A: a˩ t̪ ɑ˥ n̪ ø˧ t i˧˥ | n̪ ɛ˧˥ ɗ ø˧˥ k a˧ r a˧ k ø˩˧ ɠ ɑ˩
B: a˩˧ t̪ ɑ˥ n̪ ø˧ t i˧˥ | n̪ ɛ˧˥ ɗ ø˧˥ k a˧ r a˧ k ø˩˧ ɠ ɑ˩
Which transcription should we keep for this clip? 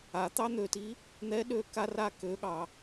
B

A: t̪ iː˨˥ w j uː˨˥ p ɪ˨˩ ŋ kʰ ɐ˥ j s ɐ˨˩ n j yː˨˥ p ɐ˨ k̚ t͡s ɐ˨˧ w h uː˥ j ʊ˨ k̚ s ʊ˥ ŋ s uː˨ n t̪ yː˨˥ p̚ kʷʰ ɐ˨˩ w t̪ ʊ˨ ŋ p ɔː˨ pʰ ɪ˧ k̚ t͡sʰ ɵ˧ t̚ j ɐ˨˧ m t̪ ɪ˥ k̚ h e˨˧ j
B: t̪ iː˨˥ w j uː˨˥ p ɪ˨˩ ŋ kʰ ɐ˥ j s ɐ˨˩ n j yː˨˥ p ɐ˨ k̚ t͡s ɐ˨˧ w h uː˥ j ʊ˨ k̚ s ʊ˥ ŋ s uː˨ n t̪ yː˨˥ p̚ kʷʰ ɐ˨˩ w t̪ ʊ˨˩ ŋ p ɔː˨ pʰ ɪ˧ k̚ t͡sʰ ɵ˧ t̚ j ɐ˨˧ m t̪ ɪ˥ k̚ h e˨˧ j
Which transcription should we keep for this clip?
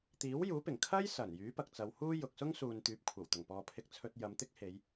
B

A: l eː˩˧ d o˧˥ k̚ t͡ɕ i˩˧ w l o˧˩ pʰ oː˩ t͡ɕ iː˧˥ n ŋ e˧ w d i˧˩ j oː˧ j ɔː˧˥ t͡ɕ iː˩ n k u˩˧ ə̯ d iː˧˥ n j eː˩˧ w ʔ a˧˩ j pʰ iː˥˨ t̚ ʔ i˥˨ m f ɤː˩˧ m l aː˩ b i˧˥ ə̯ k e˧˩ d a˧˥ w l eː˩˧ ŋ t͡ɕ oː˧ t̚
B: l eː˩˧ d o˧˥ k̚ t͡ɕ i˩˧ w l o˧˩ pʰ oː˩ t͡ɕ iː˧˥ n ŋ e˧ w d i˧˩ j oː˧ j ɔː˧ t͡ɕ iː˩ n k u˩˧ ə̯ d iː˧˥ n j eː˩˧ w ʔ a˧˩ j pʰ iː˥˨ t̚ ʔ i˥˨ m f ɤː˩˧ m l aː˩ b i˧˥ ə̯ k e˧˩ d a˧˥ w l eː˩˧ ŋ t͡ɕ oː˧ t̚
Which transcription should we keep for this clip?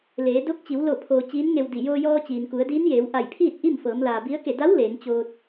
B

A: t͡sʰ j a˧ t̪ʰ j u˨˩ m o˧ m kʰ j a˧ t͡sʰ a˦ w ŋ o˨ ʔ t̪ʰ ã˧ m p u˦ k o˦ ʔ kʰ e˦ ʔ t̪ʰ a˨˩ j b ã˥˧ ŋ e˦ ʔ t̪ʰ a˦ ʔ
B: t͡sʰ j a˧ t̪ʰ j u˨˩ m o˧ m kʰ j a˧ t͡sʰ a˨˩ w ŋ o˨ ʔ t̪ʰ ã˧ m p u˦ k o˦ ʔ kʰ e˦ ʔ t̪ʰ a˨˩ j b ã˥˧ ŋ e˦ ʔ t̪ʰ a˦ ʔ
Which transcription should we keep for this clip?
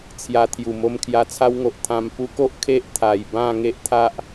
A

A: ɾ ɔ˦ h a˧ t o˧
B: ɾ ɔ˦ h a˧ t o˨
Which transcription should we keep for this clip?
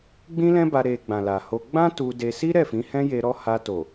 B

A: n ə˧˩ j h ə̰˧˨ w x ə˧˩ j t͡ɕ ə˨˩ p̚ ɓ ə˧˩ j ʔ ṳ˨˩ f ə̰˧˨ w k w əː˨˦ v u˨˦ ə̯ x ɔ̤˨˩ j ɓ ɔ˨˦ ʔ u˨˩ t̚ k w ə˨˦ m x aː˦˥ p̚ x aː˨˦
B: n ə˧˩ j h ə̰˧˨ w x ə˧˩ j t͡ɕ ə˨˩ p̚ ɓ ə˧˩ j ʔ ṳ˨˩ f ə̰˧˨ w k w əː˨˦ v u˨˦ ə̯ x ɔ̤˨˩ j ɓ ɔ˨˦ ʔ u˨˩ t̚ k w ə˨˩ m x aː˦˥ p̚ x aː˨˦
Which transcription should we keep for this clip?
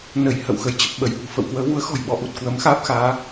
A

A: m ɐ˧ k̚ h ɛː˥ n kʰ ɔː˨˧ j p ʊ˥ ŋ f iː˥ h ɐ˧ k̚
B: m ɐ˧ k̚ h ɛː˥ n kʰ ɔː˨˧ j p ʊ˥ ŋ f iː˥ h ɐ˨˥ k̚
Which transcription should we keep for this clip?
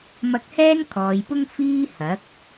B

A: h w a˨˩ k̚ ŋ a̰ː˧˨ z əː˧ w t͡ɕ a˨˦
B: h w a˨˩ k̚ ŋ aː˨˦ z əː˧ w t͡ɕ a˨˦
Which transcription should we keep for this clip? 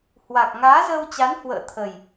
B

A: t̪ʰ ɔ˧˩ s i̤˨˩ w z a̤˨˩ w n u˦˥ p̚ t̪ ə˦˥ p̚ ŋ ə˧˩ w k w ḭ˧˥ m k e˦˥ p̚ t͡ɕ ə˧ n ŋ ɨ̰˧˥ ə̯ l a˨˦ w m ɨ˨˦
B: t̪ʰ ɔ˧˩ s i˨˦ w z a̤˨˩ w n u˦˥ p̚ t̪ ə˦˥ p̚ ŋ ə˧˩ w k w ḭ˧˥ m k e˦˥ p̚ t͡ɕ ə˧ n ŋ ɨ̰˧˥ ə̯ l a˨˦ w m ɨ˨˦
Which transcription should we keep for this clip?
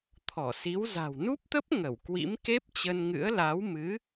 B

